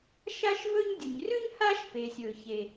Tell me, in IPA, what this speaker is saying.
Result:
ʃ a˥ ʃ v ɵ˥ ɲ dʲ u˩ ɲ r ʉ˥ ɲ h a˥ ʃ p e˩ sʲ ɵ˩ ç e˩

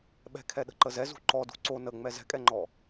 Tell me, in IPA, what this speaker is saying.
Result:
ɓ ɛ̤ kʰ ɛ ɗ ə̤ ǃ ə z ɛ z ṳ ǃ ɔ d ṳ ǀ o n ə ŋ͡m ɛ z ɛ̤ kʼ ɛ ŋ͡ǃ ɔ

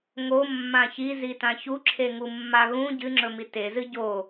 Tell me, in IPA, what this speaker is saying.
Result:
ŋ o mː ã ç i z i t ã ç u ǁʰ e ŋ u mː a ɣ ũ ɟ ɨ ŋ͡ǁ ɵ m i t e z ɨ ɟ o

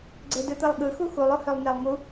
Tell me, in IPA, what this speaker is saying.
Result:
ɡ͡ǀ e d ɯ t̪ ɯ lˠ ɠ ɯ x u x u lˠ o h ø lˠ n e lˠ ŋ u

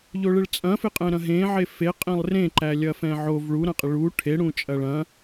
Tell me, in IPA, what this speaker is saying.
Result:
ʎ o ɭ ɪ ɭ t͡sʼ ɐ̃ f ɪ qʼ ɛ̃ ɾ ɐ̃ ɦ ẽ ʕ e f e qʼ ẽ lˠ r ẽ ǃ æ lʲ ɐ f ɛ̃ ʕ o v ɭ u ɾ ɐ̃ qʼ ɪ ɭ u ʈʰ e ɽ ũ t͡ʃʼ ɐ ɭ ɐ̃

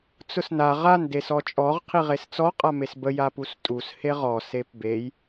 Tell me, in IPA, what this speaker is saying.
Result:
t͡s ʊ s n a ʁ a n d e s ɔ t͡ʃʼ ɔ ʁ qʰ i ʁ e s t͡s ɔ qʼ a m e s b ə j a p u s tʼ u s h e ʁ ɔ s e p b e j

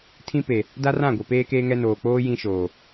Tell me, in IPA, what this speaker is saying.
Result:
tʰ ĩ˦ p e˨ | d a˦ r ã˦˨ ɡʷ e˨ p eː˦ k eː˦ ŋ ɛ˦ n oː˨ k͡p oː˦ j ĩ˦ ʃ oː˨

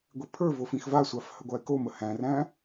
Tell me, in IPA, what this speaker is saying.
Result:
ɡʷ i pʰ ə˞ v o f ĩ x v a sʷ a f h ə ɡʷ a e̯ k o m ə h æ̃ r æ̃

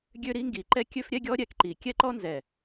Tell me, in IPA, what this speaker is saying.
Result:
ɡʲ ø˦ ɾ i˦ ŋ ɡ i˨ ǃ ɛ˦ kʲ ø˦ f ɾʲ ɛ˦ ɡʲ ɔ˦ ɾʲ ɛ˨ k ǃ i˨ kʲ ɛ˦ ǃ ɔ˦ n z ɛ˨

